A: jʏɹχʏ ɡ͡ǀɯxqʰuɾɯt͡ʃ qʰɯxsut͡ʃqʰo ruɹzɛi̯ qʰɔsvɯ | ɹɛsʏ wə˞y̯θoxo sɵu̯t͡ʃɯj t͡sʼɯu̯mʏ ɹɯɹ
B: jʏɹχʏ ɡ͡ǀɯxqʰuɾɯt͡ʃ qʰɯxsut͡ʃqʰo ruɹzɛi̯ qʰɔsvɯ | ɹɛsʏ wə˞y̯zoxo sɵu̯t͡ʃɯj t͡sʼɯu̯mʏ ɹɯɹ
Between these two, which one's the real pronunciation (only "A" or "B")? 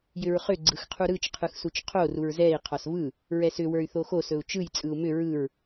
A